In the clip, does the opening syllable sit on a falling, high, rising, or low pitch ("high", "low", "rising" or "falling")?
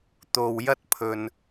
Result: low